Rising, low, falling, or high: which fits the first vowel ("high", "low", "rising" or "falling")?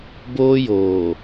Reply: high